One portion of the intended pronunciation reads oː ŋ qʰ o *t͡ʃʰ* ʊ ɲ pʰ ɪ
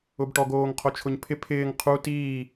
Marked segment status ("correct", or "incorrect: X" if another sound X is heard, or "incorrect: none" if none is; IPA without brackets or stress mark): correct